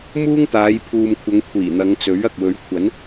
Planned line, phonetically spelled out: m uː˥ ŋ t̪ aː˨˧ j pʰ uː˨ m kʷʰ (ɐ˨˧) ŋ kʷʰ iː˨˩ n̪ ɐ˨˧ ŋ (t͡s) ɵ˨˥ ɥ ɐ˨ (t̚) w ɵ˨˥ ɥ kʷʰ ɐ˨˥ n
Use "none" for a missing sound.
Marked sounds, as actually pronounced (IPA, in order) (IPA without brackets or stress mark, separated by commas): ɐ˨˧, t͡s, k̚